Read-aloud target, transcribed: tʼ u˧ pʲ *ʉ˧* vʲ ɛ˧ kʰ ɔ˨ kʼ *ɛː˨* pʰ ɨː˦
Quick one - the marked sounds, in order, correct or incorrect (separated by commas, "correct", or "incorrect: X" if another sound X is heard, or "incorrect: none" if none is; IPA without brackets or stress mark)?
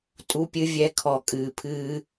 incorrect: ɨ˧, incorrect: ɨː˨